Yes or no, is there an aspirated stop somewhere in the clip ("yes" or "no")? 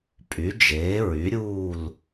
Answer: no